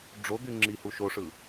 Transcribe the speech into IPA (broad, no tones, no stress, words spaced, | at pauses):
ɖ͡ʐod̪y ŋ͡ǁihu ʃoʂɯ